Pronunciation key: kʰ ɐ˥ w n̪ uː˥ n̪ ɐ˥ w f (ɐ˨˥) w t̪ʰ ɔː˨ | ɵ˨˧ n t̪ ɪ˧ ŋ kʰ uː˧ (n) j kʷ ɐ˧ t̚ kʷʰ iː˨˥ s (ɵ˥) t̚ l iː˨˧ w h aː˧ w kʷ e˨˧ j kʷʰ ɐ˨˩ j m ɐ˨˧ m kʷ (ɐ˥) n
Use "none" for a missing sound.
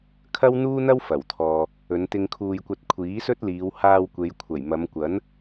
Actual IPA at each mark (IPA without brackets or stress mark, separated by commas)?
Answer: ɐ˨˩, none, ɵ˥, ɐ˨˥